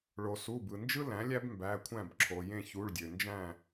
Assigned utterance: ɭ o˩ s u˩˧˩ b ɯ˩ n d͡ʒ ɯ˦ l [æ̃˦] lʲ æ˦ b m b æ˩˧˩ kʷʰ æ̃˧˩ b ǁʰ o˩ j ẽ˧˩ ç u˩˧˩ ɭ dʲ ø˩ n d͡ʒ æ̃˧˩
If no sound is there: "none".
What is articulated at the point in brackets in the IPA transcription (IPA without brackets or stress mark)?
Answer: æ̃˩˥